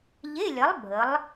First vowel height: mid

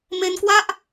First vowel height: mid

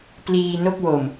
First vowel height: high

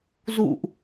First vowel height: high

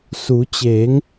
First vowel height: high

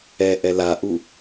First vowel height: mid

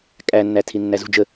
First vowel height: low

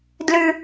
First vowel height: high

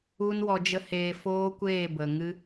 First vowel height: high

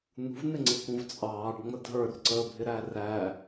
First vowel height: high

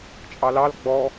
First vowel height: low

